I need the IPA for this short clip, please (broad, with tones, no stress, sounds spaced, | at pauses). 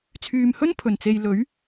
t͡sʰ yː˨ m h ɵ˥ n pʰ ɵ˨˩ n t͡s e˨ j l ɵ˨˥ ɥ